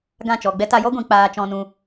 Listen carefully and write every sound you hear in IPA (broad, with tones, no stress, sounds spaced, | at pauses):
ɡ ã˦˨ t͡ʃ ɔ˨ ɡ͡b ɛ˦ t a˧ j ɔ˦ ɡʷ ĩ˨ k͡p aː˧ t͡ʃ ɔ̃˧ n ũ˧